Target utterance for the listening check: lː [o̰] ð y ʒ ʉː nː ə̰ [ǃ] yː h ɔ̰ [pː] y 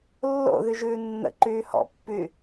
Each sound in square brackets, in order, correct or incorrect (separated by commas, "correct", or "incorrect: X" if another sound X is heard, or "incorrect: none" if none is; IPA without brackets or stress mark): correct, correct, correct